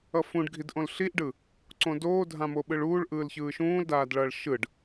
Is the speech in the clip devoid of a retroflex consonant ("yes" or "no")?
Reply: no